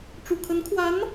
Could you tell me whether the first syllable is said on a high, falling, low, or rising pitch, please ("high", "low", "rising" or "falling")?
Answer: low